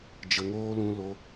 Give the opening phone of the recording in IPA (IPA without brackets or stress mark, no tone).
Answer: d͡ʒ